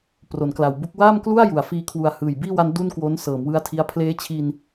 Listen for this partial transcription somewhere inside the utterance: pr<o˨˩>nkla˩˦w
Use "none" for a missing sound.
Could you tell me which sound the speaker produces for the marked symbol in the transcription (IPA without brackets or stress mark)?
o˩˦